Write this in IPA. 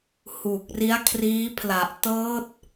h uː˨˩ k̚ r i˦˥ a̯ kʰ r iː˦˥ pʰ l a˨˩ ʔ t ɤː˦˥ t̚

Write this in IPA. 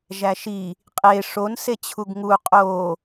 ʒ æ ʃ i | qʼ e ʂ o n s e t͡ɕʰ u ɡ ŋ u qʼ o

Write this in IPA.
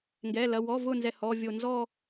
ŋ ɡ ɛ˩˧˩ l ɐ˩˧˩ w ɔ˩˧˩ v ʊ˧˩ n z ɛ˧˩ h ɔ˩˧˩ vʲ o˧˩ n z ɔ˥˧

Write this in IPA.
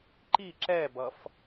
ǃ i ǁ ɛ b ʌ f

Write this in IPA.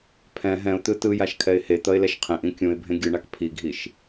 pʰ ɛ̃ ɦ ɛ̃ ʊ̯ t̪ ɯ t ɯ j a ʃ kʰ ɛ ɪ̯ h e t̪ ʌ ɪ̯ l ɛ ʃ qʰ ẽ ʔ ĩ kʲ ũ ɪ̯ bʱ ẽ ɡʲ ɯ ɳ a k pʰ i ɡʱ i ʃ

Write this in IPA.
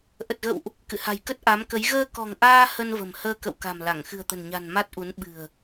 ʔ ə˨˩ t̚ ɣ ə̰˧˨ w ʔ | k ɨ̰˧˨ h a̤˨˩ j k ə˦˥ t̚ ʔ a˨˦ m k ə˨˦ j ɣ əː˧ k ɔ̤˨˩ ŋ ʔ aː˧ h ə˧ n v ə̤˨˩ m h əː˧ k ə̰˧˨ w k a̤˨˩ m l a˧˩ ŋ x ɨ̤˨˩ ə̯ t̪ ə̤˨˩ n ɲ a̤˨˩ n m a˦˥ t̚ ʔ u˨˦ n ɓ ɨ̤˨˩ ə̯

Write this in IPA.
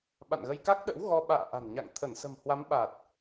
ɓ a̰˧˨ n ɣ ə˧ j k a˦˥ k̚ ɗ ə̰˧˥ w ɣ ɔ˧ ɓ a̰ː˧˨ ʔ a̤˨˩ n ɲ a̰˧˨ ŋ t̪ʰ ə˧˩ n s ə̤˨˩ m h w a˨˦ m ɓ a˨˩ t̚

